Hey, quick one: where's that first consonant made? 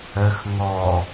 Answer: velum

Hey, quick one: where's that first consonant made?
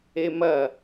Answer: lips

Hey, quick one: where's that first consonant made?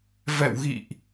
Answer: lips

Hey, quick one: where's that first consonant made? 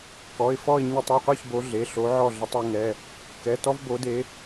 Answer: velum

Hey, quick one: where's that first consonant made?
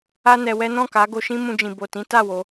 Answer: tongue tip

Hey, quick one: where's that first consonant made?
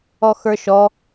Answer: velum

